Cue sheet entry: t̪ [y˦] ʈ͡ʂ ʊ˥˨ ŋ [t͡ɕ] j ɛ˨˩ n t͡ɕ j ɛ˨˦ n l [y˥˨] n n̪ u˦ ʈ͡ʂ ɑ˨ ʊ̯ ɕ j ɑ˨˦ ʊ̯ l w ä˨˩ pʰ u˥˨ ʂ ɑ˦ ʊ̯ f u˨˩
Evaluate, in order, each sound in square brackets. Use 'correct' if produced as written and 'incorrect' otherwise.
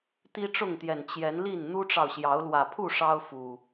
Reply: incorrect, incorrect, incorrect

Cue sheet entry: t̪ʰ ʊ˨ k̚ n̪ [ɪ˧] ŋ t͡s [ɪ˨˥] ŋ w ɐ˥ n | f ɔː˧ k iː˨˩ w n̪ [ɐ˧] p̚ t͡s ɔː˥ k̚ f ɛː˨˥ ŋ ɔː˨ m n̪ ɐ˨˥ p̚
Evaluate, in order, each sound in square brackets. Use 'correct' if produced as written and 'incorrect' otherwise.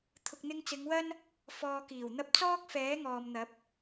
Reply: correct, incorrect, incorrect

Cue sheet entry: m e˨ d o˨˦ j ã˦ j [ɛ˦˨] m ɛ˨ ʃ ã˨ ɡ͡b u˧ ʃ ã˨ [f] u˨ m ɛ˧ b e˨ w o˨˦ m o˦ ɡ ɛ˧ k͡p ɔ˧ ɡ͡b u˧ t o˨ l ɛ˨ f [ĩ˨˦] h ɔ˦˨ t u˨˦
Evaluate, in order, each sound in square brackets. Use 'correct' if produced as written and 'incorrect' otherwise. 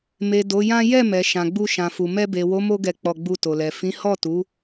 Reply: correct, correct, correct

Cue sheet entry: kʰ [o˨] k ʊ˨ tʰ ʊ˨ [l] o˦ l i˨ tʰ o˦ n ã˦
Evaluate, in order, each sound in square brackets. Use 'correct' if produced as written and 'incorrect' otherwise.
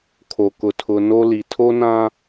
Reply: correct, incorrect

